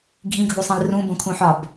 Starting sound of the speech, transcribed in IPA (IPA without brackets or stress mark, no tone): ɡʱ